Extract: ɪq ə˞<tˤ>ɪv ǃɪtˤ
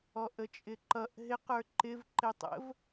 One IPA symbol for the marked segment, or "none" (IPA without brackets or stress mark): ǃ